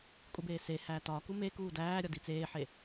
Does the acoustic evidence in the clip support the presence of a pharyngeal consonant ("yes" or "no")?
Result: yes